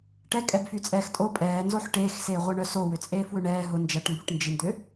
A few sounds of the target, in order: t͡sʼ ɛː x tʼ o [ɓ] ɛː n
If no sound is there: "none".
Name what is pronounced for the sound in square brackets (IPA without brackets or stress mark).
pʼ